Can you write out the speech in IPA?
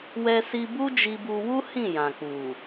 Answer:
w ɛ˧ s i˧ b u˦ d͡ʒ i˧ b u˧ w u˦ h ĩ˦˨ j ã˨ k͡p u˨

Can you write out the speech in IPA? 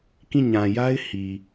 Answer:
k ĩ˦˨ ɲ ã˨ j a˦ ɪ̯ h i˨

